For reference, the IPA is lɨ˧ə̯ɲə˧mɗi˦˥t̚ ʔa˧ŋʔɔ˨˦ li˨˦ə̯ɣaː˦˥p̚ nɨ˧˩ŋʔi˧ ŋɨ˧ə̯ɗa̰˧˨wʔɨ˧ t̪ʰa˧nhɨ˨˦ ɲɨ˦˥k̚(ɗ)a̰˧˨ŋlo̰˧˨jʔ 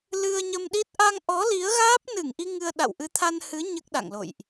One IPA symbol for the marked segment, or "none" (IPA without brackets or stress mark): ɗ